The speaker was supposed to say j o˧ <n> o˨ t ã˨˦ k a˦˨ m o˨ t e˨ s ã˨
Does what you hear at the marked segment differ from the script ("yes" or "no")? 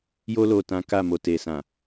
yes